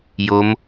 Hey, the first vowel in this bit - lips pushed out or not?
yes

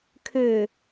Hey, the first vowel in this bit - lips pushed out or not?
yes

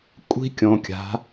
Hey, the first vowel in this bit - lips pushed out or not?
no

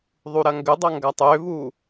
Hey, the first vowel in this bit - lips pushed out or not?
yes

